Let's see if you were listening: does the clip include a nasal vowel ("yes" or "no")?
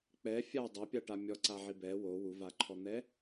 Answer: no